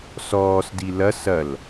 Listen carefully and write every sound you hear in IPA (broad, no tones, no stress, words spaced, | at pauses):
sɔːsdi lɐs ɐl